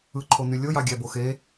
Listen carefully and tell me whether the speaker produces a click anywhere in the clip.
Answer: yes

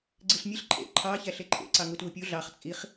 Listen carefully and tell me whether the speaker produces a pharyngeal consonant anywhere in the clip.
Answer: no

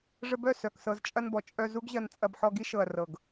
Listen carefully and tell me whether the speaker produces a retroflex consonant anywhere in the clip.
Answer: yes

